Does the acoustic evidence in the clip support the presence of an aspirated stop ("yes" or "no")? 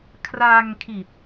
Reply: yes